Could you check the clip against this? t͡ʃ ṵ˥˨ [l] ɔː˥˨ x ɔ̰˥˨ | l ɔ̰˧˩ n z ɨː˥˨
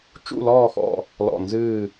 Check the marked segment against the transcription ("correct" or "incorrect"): correct